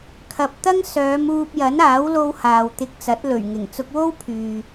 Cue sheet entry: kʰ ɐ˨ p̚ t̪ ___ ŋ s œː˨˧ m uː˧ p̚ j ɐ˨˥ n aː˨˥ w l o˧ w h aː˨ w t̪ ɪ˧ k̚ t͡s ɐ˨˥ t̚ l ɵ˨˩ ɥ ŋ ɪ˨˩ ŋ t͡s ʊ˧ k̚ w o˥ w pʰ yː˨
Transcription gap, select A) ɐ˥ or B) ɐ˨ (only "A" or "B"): A